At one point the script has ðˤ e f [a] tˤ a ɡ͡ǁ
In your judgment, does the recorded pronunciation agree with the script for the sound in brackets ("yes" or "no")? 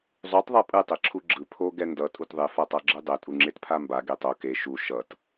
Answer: yes